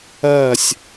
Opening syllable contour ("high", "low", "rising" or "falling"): falling